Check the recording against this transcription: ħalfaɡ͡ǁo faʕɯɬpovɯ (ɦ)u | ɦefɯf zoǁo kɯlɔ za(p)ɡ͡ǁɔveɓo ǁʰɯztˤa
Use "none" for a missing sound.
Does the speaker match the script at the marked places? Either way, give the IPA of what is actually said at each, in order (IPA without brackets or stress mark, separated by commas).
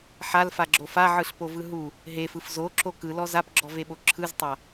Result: ɦ, p